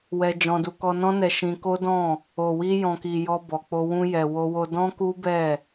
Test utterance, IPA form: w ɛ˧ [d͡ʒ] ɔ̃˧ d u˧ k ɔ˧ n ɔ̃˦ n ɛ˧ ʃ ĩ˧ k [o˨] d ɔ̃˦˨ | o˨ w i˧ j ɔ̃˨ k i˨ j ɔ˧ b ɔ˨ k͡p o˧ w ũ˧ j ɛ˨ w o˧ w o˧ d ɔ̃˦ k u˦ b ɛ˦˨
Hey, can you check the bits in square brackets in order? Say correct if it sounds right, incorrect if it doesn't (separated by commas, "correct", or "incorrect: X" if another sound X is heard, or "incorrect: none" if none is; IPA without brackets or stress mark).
correct, incorrect: o˦